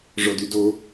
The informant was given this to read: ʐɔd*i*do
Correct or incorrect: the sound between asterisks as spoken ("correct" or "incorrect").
incorrect